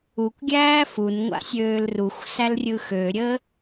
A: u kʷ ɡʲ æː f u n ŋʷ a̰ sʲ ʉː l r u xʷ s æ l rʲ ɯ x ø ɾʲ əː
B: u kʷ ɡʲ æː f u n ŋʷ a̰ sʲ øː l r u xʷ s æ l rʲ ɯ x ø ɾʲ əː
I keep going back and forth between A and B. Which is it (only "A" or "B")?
B